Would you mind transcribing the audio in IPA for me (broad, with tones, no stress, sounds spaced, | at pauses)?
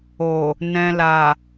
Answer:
o˨ | n ɛ̃˨ l a˨